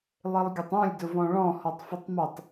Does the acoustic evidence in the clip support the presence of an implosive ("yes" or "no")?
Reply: no